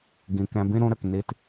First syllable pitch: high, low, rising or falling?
low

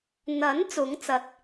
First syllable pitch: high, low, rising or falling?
rising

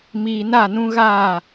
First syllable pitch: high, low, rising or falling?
low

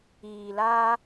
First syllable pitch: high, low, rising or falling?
low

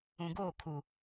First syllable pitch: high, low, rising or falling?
low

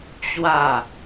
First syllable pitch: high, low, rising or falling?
falling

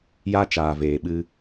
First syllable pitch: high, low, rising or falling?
high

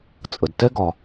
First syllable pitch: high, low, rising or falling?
low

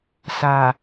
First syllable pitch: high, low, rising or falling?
low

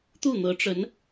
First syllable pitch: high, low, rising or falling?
falling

